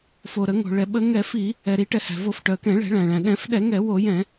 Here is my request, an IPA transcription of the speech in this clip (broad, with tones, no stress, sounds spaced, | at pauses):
f o˩ ɾ ə˧˩˧ ŋ o̤˩ ɭ ɛ˩ ɓ ə˧˩˧ ŋ ɛ˧˩˧ f i˧˩˧ | ɛ˩ ɾ i˧˩˧ ʈ ɛ˩ h æ̤˩ v o˧˩˧ f ʈ œ˩ ə̯ k ɛ̃˧˩˧ ɭ ɛ̤˧˩˧ ɭ æ̃˩ ɭ æ̃˩ ɗ ɛ̃˧˩˧ f ɗ ɛ˧˩˧ ŋ ɛ˧˩˧ w o˧˩˧ j ɛ̃˧˩˧